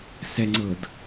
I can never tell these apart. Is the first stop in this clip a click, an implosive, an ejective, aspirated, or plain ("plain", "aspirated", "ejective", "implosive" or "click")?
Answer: click